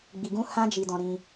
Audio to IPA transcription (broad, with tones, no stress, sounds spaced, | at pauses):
ɡ͡b i˧ ɡ ũ˦ h ã˦ d͡ʒ i˧ d ɔ̃˧ ɾ ĩ˧